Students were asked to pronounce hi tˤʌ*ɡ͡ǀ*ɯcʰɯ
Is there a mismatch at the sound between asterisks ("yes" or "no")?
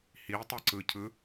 yes